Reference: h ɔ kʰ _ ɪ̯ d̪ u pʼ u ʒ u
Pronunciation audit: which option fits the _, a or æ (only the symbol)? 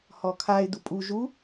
a